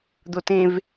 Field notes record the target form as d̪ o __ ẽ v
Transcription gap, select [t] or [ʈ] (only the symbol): t